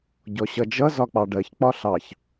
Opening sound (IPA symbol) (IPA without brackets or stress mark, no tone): ɟ